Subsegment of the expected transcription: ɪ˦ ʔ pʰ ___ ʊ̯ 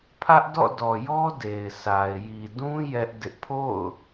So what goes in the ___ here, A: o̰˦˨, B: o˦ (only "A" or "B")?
A